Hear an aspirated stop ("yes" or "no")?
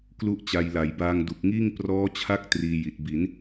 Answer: yes